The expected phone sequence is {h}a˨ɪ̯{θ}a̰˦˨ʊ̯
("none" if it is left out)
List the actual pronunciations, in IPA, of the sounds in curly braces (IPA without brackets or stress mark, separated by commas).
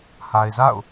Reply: h, z